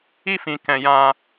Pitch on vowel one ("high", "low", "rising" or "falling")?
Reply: high